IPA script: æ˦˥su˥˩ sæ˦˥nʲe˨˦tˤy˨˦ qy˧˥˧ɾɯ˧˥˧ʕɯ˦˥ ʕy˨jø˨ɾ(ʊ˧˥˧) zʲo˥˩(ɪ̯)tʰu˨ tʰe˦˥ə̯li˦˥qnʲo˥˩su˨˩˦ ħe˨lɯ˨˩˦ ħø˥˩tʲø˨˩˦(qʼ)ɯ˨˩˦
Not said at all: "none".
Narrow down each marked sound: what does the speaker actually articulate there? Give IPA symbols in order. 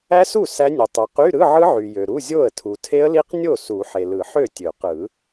u˧˥˧, ə̯, q

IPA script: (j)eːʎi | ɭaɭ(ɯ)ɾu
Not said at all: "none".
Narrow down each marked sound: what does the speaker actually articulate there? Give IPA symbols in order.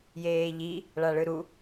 j, ɯ

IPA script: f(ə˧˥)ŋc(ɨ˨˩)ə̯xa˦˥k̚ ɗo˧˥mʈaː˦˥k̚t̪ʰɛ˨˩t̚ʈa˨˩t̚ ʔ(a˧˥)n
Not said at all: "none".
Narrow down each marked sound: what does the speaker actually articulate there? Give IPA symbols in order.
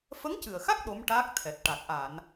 ə˧˥, ɨ˨˩, a˨˩˨

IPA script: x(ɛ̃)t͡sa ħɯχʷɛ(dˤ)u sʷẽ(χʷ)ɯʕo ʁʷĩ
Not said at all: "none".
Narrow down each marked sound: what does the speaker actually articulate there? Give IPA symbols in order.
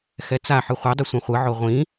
ɛ, dˤ, χʷ

